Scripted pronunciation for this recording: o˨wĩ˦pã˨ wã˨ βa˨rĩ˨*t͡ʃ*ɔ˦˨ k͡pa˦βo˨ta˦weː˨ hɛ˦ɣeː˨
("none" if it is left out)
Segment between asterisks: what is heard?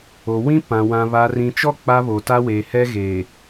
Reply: t͡ʃ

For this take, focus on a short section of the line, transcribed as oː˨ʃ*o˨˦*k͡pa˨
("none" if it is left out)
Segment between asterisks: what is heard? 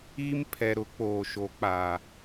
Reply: o˨˦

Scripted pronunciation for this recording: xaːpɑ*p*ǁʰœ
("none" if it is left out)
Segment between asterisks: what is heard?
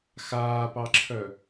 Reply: none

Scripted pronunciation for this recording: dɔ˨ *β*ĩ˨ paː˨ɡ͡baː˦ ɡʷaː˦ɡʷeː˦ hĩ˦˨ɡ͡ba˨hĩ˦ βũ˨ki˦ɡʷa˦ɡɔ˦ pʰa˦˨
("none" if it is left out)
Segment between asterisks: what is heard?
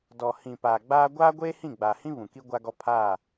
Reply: h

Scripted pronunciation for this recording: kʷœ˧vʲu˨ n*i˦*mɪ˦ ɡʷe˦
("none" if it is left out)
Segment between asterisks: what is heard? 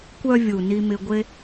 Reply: i˦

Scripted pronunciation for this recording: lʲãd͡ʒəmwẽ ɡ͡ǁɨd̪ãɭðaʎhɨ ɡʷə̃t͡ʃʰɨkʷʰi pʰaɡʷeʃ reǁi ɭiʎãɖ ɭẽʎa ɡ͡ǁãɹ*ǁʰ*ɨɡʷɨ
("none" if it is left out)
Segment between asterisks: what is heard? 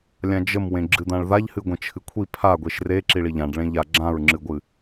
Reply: ŋ͡ǁ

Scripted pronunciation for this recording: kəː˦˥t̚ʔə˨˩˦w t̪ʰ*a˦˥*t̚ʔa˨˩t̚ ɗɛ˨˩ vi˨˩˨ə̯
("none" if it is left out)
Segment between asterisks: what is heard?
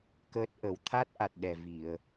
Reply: a˦˥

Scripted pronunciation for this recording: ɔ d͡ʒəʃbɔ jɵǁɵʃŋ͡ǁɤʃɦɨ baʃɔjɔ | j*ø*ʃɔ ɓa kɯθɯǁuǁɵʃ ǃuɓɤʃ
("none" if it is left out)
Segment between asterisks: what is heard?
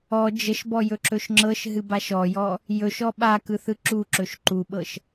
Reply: ɵ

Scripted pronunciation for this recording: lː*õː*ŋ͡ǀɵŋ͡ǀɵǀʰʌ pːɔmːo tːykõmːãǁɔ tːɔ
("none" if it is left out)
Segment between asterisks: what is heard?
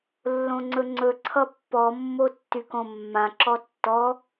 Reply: õ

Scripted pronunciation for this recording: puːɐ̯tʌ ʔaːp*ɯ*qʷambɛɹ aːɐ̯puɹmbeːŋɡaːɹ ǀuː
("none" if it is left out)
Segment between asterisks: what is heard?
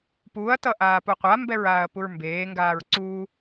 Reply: u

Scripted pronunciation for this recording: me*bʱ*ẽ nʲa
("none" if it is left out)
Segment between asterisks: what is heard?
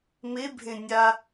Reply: bʱ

